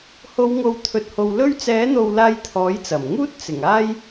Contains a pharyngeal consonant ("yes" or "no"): no